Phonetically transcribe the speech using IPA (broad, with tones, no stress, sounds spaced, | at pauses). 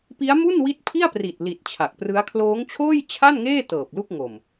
p i˦˥ a̯ m u˥˩ n w i˦˥ t̚ pʰ i˥˩ a̯ p r i˨˩ t̚ l i˨˩ t̚ t͡ɕʰ a˨˩ k̚ p r ɯ˦˥ a̯ kʰ l oː˦˥ ŋ t͡ɕʰ oː˥˩ j t͡ɕʰ a˥˩ n ŋ eː˥˩ t ɤː˨˩ p̚ l u˥˩ k̚ ŋ o˨˩ m